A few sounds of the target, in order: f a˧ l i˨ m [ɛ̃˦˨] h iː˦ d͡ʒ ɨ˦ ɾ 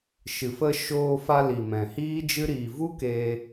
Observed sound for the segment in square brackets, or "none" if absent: ɛ̃˨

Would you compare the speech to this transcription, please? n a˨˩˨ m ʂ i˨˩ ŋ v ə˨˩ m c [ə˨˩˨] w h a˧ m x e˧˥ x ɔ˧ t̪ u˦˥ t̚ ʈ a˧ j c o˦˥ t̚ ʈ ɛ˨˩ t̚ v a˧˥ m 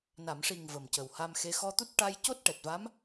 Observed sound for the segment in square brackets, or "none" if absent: ə˨˩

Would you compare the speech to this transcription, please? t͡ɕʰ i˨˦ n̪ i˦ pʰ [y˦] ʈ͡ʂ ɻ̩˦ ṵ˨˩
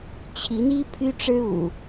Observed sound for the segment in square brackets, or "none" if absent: y˦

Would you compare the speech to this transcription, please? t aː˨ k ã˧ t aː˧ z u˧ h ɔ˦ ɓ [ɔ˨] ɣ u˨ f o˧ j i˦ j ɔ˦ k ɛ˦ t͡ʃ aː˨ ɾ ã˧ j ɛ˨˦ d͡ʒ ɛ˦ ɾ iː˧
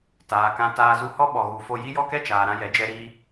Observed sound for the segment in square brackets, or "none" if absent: ɔ˨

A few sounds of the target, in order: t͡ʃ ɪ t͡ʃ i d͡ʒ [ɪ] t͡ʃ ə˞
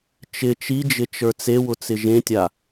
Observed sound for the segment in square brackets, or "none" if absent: ɪ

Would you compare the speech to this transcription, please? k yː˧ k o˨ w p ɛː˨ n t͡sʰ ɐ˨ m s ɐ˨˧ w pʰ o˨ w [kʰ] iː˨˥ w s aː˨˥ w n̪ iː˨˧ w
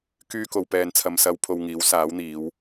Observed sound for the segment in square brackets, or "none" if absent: ŋ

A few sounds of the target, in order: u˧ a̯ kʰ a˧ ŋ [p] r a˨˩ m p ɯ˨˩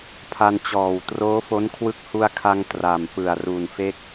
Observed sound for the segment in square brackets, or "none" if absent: t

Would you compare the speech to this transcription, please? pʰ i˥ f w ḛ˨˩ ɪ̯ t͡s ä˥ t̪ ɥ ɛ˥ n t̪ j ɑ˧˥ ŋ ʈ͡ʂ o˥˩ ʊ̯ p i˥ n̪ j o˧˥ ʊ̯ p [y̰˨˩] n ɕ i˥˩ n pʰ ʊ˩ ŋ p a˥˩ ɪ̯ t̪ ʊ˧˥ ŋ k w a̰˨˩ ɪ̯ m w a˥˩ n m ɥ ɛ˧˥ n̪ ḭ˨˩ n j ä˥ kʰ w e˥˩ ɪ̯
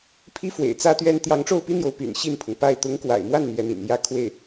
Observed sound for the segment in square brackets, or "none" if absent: y̰˨˩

